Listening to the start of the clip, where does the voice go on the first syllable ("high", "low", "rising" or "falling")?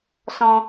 high